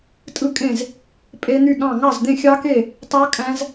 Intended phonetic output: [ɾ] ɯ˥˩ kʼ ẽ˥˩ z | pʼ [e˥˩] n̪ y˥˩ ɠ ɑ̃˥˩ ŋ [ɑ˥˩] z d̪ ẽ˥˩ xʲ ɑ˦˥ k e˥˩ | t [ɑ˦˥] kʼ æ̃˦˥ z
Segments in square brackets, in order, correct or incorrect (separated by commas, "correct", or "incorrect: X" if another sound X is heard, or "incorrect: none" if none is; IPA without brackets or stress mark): incorrect: tʼ, incorrect: e˦˥, correct, correct